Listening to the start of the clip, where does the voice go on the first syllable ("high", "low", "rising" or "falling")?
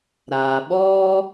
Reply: low